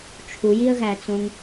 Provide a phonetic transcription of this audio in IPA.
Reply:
t͡ʃʰujiə̯ɣæt͡sõŋ

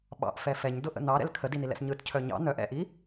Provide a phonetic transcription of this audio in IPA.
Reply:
ɓɑ̰ʔfɛ fɛɲdʊʔə̰ n̪ɑɾɛ̰l kʰədinilɛ̰s ɲɯtcʰœ ɲɑ̰ n̪œʔ ɛ̰ʔi

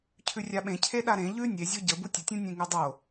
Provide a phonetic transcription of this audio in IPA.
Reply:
cʰʉrʲaɓẽ cʰeɗaɾẽ ʎʉ nʲezʲo ɟə butʲətʲũ nʲẽŋʉdˤo

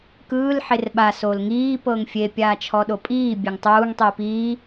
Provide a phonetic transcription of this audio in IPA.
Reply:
kɯːl ħerɓa solŋiː pɤŋfʲe pʲaːt͡ʃʰɔɗopʼiː bʲeŋtˤuːŋ tˤiːpiː

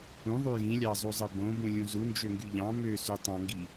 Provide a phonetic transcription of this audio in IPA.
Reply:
ũðˤy jĩlʲɑzˤuzˤɯ bõbũlʲũ zund͡ʒøŋɡy ʎɑ̃ møsy tˤɑ̃ŋɡi

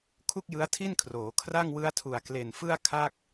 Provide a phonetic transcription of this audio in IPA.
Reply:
kʰu˥˩k̚jɯ˦˥a̯tʰi˥˩nkʰroː˩˦ kʰra˥˩ŋwɯ˦˥a̯tʰu˨˩a̯ kle˨˩nfɯ˥˩a̯kʰa˥˩k̚

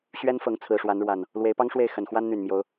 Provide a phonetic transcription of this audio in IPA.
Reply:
ɕɥɛ˦nfɤ˨˦ŋ t͡sʰɹ̩˨˩ʂwa˨˦nɻwa˨˩n | lwe˨˦ɪ̯pɑ˦ŋʂwe˥˨ɪ̯xə˨˩n xwa˦nn̪y˨˩nmjo˨˦ʊ̯

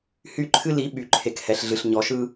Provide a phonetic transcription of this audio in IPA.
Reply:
hy˦˨ǃʰɨ˦ li˨˦ ɓy˨ǃʰe˨khɛ˨ɬɮɨ˨ɬ ɲɔ˨ʃɯ˦

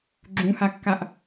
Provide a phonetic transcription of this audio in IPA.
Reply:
ɡ͡ǁũhakːaʔ

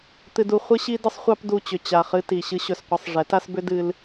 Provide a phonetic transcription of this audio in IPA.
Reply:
t̪ɨ˧du˧ χʷɨ˦ɕi˦dɨ˦sˤ χʷɑ˦pdu˧t͡ɕʏ˨ t͡ɕa˨χɨ˧ti˨ ɕɨ˦ɕɵ˧sqʷɨ˧sˤ ʐɛ˨˦ta˦sbʏ˦ dɨ˦l

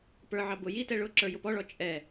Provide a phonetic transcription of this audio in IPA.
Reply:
pə˞ʕɑ bʊ jitɛ ɭʊ ǁə˞jʊpɔɭɔ t͡ʃʼɛ

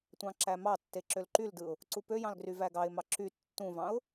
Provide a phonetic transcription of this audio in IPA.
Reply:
tʷɑ̃ǁæmɑtːe ǁølǃyldɯʊ̯ | ǀupøjɑ̃l ɡryvæɡɑɪ̯mɑ ǁy tːũvɑ̃ʊ̯

